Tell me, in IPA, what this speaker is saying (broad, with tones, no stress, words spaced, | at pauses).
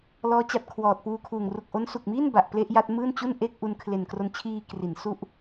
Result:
lɔː˦˥t͡ɕa˨˩t̚ kʰwɔː˨˩t̚puː˧kʰuː˨˩ŋ ru˨˩k̚ʔo˦˥nsu˨˩k̚miː˥˩n ba˨˩ʔ ple˥˩ʔja˥˩t̚ mɯː˥˩nt͡ɕu˥˩nʔe˥˩k̚ ʔu˧n kʰle˨˩nkro˧nt͡ɕʰiː˧ kri˩˦n su˥˩ʔ